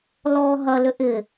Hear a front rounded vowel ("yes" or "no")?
yes